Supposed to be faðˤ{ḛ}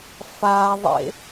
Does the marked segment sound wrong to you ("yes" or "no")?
no